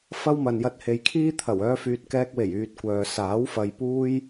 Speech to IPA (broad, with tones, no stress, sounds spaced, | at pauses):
f ɐ˥ w m ɐ˨ n j ɐ˧ t̚ h e˨ j kʰ iː˥ t̪ʰ ɐ˨˩ w œː˧ f yː˨ t̚ k ɛː˧ k̚ w e˨˩ j yː˧ t̚ kʷ œː˨ s aː˨˥ w f ɐ˨ j p uː˥ j